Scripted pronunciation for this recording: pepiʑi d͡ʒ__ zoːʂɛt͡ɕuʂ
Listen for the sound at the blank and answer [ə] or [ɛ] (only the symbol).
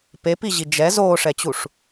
ɛ